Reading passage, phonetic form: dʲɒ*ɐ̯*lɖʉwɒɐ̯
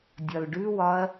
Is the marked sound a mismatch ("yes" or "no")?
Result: yes